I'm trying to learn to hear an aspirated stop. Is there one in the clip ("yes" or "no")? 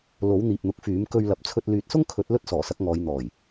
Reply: yes